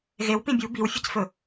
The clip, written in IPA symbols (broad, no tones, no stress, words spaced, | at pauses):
ɣew pĩbʲu biwfʲɨcfɵ